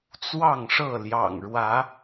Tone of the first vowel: falling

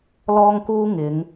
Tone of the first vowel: high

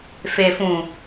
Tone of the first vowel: low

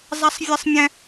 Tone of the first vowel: high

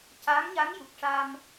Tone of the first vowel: rising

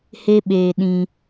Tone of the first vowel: high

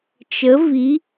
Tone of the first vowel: rising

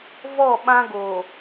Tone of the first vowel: falling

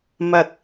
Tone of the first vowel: low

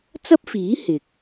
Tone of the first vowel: high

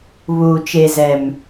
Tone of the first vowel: low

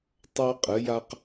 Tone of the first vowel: high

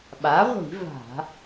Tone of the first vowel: rising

